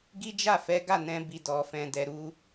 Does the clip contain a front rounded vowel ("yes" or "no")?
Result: no